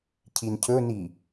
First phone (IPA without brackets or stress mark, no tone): cʰ